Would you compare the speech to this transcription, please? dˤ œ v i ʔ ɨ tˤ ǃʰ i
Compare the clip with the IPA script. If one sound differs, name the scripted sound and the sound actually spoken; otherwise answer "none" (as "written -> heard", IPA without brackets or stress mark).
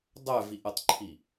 ɨ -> ə